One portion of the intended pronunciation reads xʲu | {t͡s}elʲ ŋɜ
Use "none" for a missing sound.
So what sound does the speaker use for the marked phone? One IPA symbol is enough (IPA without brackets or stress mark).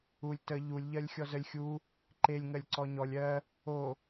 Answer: ǃ